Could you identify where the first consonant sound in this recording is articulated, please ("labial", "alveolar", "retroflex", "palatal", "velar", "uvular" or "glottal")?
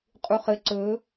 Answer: uvular